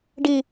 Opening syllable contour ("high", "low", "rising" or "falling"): low